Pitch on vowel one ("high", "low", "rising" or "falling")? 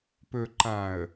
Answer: low